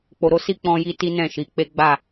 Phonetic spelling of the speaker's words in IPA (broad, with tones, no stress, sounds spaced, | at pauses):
k͡p o˨ ɾ o˨˦ s i˦˨ k͡p ɔ̃˧ j i˦ t i˦ n ɛ̃˦˨ ʃ i˨˦ k͡p e˦ ɡ͡b a˦˨